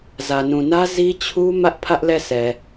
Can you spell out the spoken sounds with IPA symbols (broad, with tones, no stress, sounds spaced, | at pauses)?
z ä˨ n ũ˨ n ä˦ z i˦ t͡ɕʰ u˦ m ä˦ ʔ pʰ ä˦ ʔ l ɛ˦˨ s ɛ˨